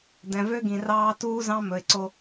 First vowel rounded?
no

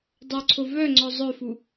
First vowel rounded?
yes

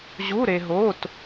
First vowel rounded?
yes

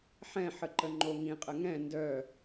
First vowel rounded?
no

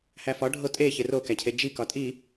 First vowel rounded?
no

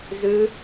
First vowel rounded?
yes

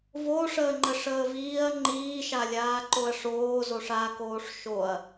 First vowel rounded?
yes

